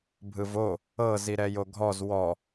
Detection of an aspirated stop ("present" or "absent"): absent